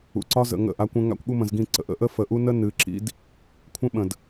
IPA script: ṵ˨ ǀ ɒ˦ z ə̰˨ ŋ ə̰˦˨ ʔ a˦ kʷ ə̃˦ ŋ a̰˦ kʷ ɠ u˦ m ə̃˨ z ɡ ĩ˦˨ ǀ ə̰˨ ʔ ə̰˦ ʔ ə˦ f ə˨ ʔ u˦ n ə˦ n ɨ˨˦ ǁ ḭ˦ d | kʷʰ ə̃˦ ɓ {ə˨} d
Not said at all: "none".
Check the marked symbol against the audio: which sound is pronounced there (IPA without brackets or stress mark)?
ə̃˨